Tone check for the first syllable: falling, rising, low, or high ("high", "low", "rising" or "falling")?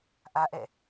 high